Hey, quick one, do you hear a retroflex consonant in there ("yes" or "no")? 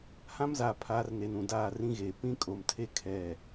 no